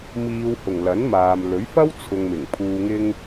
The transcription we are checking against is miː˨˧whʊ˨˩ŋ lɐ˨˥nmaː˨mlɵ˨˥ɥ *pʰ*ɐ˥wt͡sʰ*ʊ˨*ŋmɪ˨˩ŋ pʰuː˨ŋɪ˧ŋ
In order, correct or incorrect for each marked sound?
incorrect: f, correct

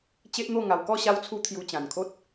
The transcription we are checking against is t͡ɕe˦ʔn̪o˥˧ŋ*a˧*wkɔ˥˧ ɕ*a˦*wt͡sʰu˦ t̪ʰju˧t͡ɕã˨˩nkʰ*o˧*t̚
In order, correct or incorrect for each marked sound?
correct, correct, incorrect: o˦

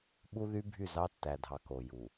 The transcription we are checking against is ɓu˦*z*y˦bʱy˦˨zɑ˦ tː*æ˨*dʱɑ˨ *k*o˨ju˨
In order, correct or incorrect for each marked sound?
incorrect: ð, correct, correct

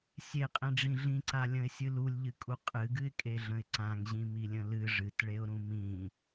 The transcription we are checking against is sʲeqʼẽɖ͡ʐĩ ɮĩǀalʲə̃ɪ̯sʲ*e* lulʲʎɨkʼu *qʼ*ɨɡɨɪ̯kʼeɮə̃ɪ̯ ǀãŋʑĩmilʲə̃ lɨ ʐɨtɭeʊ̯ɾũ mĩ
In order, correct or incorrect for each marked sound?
incorrect: ɨ, correct

